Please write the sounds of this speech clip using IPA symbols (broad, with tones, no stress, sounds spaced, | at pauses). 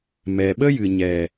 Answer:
m ɛ˨ ɓ ə˦ j ɨ˨ ɲ ɛ˨